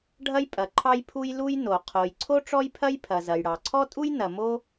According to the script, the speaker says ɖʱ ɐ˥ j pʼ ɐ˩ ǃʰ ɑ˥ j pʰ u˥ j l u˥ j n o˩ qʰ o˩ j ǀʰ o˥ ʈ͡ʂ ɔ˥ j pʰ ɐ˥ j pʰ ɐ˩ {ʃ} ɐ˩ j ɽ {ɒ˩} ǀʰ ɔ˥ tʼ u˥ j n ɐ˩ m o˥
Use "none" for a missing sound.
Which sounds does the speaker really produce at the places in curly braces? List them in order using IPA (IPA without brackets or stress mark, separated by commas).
z, ɑ˩